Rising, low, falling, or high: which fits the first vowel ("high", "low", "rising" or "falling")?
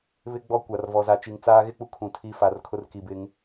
high